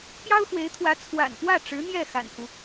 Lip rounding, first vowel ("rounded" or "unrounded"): unrounded